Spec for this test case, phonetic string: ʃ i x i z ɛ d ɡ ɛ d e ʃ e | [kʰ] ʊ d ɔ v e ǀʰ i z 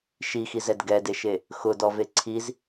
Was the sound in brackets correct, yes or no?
no